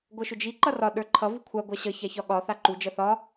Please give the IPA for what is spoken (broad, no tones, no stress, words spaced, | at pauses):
ɡʷʌʃʊd͡ʒi ǃʌrɒ ɗə˞ǃʰʌ vukʷʰa ɡʷaɕʌ çaçɒɠɒ θaǃu d͡ʒʌθɒ